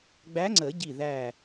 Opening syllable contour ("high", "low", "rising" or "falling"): rising